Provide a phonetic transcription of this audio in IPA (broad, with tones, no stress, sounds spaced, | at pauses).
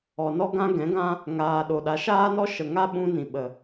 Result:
ɔ˨ n ɔ˧ ɡ ã˧ ɡ ɛ̃˨˦ ɡ ã˦ | ŋ aː˨ ɗ o˨ ɗ a˨˦ ʃ aː˦ n ɔ˦ ʃ ə˨ ŋ a˦ ɓ ũ˧ n ĩ˨ ɓ ə˨